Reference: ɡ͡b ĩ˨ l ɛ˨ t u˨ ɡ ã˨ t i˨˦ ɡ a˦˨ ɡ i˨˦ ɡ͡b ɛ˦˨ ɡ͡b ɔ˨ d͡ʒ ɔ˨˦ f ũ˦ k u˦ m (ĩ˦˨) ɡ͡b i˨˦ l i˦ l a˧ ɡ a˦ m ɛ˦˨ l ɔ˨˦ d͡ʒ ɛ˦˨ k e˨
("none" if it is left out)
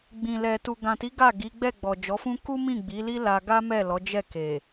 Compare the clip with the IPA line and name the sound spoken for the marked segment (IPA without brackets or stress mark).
ĩ˦˨